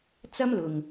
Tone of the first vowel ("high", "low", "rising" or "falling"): high